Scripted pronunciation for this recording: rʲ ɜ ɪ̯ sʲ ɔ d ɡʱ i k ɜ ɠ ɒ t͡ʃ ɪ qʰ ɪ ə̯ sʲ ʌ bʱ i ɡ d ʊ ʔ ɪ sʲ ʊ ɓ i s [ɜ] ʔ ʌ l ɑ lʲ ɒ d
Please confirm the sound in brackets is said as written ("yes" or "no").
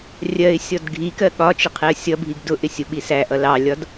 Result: no